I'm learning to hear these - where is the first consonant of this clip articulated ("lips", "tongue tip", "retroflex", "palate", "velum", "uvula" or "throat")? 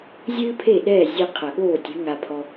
tongue tip